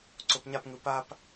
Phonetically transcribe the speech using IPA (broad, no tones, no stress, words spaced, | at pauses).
ǀopɲapŋɯ pap